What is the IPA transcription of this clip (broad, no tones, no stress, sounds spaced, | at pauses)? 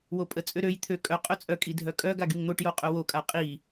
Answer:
w o pʼ ə t͡sʼ ø ɾ ø j t̪ʰ ø kʼ œ qʼ œ t͡sʼ œ kʼ i dʱ œ kʼ œ ɡ a ɡ y ŋ n̪ o ʈ j o qʼ œ w o kʼ a qʼ i